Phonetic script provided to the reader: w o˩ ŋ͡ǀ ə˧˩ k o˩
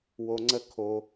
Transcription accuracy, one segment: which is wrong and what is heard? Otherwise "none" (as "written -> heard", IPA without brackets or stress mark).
k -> kʰ